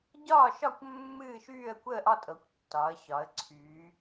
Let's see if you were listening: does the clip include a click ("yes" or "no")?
yes